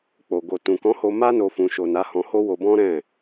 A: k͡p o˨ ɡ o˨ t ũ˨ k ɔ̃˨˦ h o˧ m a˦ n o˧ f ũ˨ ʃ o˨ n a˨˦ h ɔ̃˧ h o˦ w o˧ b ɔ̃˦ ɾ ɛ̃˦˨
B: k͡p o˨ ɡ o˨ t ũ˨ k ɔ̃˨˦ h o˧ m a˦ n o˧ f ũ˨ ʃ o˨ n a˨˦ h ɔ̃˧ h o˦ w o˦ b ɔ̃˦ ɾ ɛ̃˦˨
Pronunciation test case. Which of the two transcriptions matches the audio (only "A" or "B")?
A